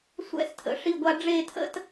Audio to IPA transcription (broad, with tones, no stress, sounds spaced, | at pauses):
sʷ ɛ̰˥˧ s tʰ ə̰˩˧ ʂ i˥˧ ɡʷ a˥ ɖ͡ʐ e˥˧ tʰ ə̰˥ t